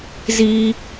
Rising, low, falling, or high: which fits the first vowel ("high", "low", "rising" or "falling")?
high